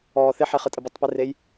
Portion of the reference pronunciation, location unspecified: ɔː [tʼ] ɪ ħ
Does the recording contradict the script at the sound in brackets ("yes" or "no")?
yes